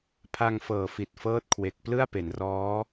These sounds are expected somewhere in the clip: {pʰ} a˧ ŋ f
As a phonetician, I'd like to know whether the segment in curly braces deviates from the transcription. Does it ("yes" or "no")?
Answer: no